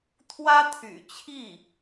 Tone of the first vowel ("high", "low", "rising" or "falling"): high